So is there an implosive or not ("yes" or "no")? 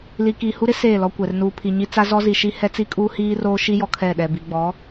yes